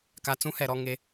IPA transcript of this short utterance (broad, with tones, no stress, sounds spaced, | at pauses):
k a˨ t͡s ũ˦ h ɛ˨ ɾ ɔ˦ ŋ e˦